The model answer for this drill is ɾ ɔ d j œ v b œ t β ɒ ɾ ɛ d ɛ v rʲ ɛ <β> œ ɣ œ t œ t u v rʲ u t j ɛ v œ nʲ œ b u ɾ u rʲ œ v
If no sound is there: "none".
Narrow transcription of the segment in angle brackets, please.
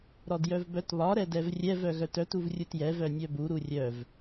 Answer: v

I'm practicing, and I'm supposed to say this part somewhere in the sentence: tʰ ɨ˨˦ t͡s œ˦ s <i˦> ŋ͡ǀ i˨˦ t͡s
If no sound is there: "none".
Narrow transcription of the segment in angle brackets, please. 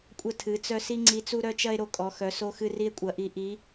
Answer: i˦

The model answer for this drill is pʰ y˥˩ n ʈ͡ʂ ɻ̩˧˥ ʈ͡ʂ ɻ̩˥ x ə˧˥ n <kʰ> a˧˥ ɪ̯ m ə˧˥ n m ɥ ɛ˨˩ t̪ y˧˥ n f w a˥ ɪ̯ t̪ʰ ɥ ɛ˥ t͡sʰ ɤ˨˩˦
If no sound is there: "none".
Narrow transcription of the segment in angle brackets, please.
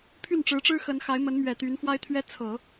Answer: x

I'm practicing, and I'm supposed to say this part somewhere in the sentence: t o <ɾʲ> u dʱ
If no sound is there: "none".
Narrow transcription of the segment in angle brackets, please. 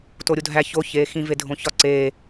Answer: ɾʲ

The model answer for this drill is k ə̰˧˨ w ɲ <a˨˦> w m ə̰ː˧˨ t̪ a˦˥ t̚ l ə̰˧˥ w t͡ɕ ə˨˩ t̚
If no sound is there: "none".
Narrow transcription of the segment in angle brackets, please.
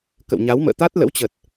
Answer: a˨˦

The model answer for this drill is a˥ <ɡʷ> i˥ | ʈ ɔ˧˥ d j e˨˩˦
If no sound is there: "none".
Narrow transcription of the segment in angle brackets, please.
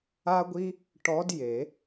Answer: ɡʷ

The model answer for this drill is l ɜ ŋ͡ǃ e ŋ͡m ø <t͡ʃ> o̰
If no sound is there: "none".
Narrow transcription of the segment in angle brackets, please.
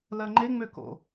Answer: k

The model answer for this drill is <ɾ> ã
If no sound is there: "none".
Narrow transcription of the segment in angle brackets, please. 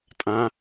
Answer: tʼ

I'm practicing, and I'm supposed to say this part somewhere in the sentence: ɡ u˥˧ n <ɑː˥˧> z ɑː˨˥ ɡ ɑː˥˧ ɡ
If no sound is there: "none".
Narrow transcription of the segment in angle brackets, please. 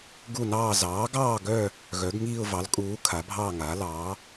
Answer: ɑː˥˧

